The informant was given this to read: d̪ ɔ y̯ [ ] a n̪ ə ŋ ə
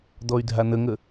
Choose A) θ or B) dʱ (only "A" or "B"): B